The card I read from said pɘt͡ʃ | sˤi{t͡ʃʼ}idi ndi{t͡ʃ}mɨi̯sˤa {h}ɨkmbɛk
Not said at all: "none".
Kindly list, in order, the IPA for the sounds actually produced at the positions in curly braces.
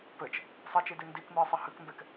t͡ʃ, k, h

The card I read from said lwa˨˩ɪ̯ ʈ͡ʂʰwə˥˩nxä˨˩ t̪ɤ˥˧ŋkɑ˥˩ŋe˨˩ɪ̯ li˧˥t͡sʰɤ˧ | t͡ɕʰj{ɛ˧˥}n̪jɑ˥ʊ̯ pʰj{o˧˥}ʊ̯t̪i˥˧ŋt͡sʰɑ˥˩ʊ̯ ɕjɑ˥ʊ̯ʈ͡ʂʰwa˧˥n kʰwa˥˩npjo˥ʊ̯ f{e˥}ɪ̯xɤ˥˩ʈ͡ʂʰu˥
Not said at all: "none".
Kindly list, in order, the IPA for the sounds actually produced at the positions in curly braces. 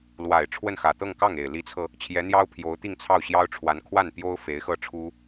ɛ˧˥, o˧˥, e˧˥

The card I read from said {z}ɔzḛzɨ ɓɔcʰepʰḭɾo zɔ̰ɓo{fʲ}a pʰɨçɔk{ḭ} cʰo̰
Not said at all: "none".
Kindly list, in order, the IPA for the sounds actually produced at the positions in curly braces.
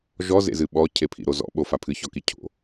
ʒ, f, i

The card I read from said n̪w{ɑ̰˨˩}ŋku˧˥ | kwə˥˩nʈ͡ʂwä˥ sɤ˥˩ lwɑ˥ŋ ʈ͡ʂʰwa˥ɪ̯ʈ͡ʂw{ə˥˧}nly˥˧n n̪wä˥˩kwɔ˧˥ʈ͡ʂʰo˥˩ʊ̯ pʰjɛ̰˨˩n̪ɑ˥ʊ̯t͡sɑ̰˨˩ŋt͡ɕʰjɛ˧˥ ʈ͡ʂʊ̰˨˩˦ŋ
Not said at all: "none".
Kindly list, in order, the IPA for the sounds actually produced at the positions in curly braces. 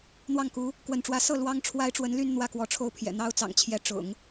ɑ˥˩, ə˧˥

